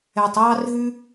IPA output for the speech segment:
ɛ˨tˤjɑ˦r ɦʉ˦

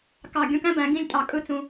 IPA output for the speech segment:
kɑ˧˩ɡʲũ˥˧kæ̃˥ bæ̃˩˧ɡĩ˥˧lʲ tʼɑ˧˩kʼɯ˥˧t͡sũ˧

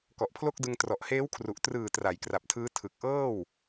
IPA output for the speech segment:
kɔ˨˩ʔpʰlo˥˩k̚dɯ˧ŋ trɔ˨˩ʔheː˦˥wkʰru˨˩ʔ trɯː˨˩ tra˩˦jkra˨˩p̚tʰɯː˦˥ tʰɯ˨˩k̚ʔɤː˥˩w

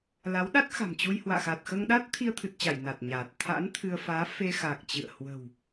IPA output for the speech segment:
la˨˦wɗa˦˥t̚xa̤˨˩mt͡ɕu˧j hwa̰ː˧˨xa˨˩t̚xəː˧ŋɗa˦˥t̚ t̪ʰi˧ə̯t̪ʰɨ˨˩t̚t͡ɕa˧˩j na˨˩t̚ɲaː˨˩t̚ t̪ʰa̰˧˥n t̪ʰɨ˧ə̯ faː˨˦ fe˧xa˨˩k̚ t͡ɕɨ̰˧˨ə̯ hwə̤˨˩w

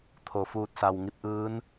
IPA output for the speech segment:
t̪ʰo˩fuː˧˩t̚sa˩w ŋi˧p̚ʔɯː˧˥n

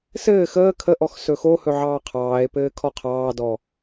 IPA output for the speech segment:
sɘː xəː kʰəʔɔx sɵxohɵ ʕɑːqʰɑːe̯pɘː kʰɔqʰɑːdɔ

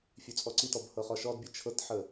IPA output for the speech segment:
fʲʉt͡sʼɔǀitɔb hɤχɔʃɔdbʲə t͡ʃʰɤtħə

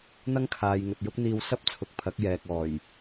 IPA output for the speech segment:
n̪ɐ˥ŋkʰaː˨j ŋɵ˨t̚jʊ˥k̚n̪iː˧w sɐ˥p̚t͡sʰʊ˨k̚pʰɐ˨˥k̚ jɛː˨k̚ɔː˨˩j

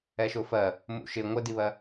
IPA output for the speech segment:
ɛʃʊfɜ | mṵʃɪ ŋʷədiβɜ

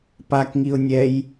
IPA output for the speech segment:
pakŋiʊ̯ nʲɛj

